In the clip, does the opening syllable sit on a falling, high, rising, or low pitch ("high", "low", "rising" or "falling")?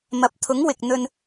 rising